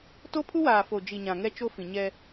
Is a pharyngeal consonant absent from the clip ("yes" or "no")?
yes